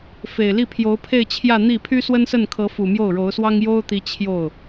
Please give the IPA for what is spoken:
f e˨˩ ɪ̯ l i˥˩ pʰ j o˧˥ ʊ̯ pʰ e˥˧ ɪ̯ t͡ɕʰ j ä˥˧ n̪ i˥˩ pʰ y˥ s w ə˥ n s ə˥˩ n kʰ ɤ˧˥ f u˨˩ m j o˥˩ ʊ̯ ɻ o˧˥ ʊ̯ s w ɑ˥ ŋ j o˥ ʊ̯ t̪ i˧˥ t͡ɕʰ j o˥˩ ʊ̯

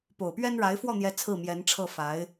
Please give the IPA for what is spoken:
p o˨˩ ʊ̯ p ɥ ɛ˥ n ɻ a˧˥ ɪ̯ f w ɔ˥˩ n̪ j ɛ˧˥ t͡sʰ ɹ̩˥˩ m j ɛ˧˥ n ʈ͡ʂʰ ɤ˥˩ f a˧˥ ɪ̯

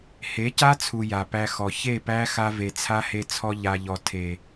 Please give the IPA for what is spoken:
h e˨˦ c a˦ t͡sʰ u˨ j a˨ p æ˧ x ɔ˨ ç e˦˨ p æ˦ x a˧ v e˨ t͡sʰ a˦ h e˧ t͡sʰ ɔ˧ ʎ a˧ ʎ ɔ˧ tʰ e˨

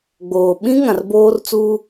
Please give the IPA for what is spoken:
ɡ͡b oː˨ ɓ ĩ˦ ŋ ã˨ r b oː˦ r t͡s uː˦

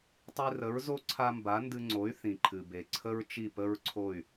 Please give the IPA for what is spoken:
tˤ i˧ r ə˩˥ ɹ z o˥ ǀʰ a˥ m b a˩˥ n d ɨ˧ ŋ͡ǀ o˩˥ y̯ θ ĩ˩ ǃʰ ɨ˩ b e˩ ǀʰ ə˥ ɹ t͡ʃ i˥˩ p ə˥ ɹ ǀʰ o˥˩ y̯

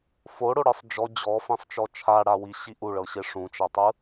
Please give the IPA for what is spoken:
f o ɽ o ɽ ɯ sˤ d͡ʒ ɔ d͡ʑ ɔ f ẽ sˤ t͡ʃ ɔ t͡ʃʰ a ɽ a w i ɕ i ʔ u ɭ ɤ ɕ e ʂ ũ t͡ʃ a tˤ ɯ

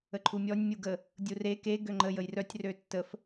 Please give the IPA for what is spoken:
ə ǃʰ u mʲ ɔ nʲ mʲ u ɡ ə | dʲ u r e k e ɡ ø ŋ͡ǃ ə j ə j r œ tʲ r ø tː ə f

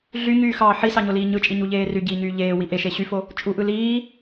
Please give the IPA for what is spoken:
ɮ y ɲ yː x ɑː ħ i s ɑ ɲ o l iː ɲ ɯ t͡ʃʼ i ɲ u ʎ eː r y ɟ iː ɲ yː ʎ eː w i ʔ e ʃ e ɕ y f o | t͡ʃʼ u ʔ ɯ l iː

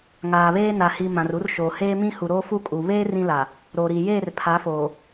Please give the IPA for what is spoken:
ŋ aː˨ β eː˦ n a˨ h i˨ m ã˨ r u˦ r ʃ oː˨ h eː˦ m ĩ˦ h u˨ ɾ oː˦ f u˦ kʼ u˨ β eː˦ r ĩ˦ l a˨ | ɾ o˨ ɾ i˨ j eː˦˨ r pʰ a˨˦ f oː˨

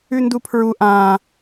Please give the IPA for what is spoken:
ʉ n d u pʰ ɹ u ʔ ã

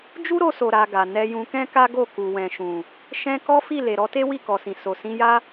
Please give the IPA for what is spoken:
d͡ʒ u˦ ɾ o˧ s o˨ ɾ a˧ ɡ a˨ n ɛ˧ j ũ˧ k ɛ̃˦ k a˦ ɡ o˦˨ k u˨ w ɛ̃˨ ʃ ũ˨ | ʃ ɛ̃˦ k ɔ˦ f i˦˨ l e˨ ɾ ɔ˨˦ t e˦ w i˦˨ k ɔ˨ s ĩ˨ s o˨ s ĩ˧ j a˦

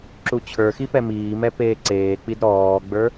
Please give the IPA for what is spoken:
ǁ u t͡ɕʰ ə˞ x i p ɛ m iː m ɛ p eː ǀ eː k͡p i d ɾ ɔː ɡ͡b ə˞

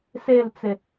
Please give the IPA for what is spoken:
s e l t͡s e

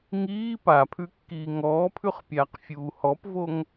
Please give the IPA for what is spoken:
ŋ iː p a pʰ ʉ kː iː ŋ ɔː pʰ ʉ χ pʲ aː q fʲ uː h ɔ p v o ŋ

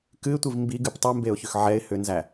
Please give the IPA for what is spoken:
k ɨ ɪ̯ tʷ i v m b i ɡ ɨ p tˤ u m b e ʊ̯ ç ʏ x ʕ ɛ ɪ̯ h ʏ n z æ

